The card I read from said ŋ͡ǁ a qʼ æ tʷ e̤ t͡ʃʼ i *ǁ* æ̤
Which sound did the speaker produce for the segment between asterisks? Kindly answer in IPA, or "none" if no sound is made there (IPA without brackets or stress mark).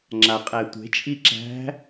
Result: ǁ